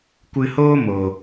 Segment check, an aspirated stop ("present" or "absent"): absent